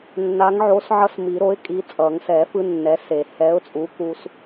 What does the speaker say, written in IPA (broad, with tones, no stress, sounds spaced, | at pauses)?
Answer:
nː a˨˥ ŋ ʕ o˨˥ s ʕ ʌ˦ s m i˨˩˦ ɾ o˨˥ ɪ̯ kʼ i˨˥ t͡sʼ ʌ˨˩˦ ŋ s ɛ˨˩˦ f ɯ˦ nː ɛ˨˥ s e˨˩˦ h ɛ˨˥ ʊ̯ t͡sʼ u˨˥ k u˦ s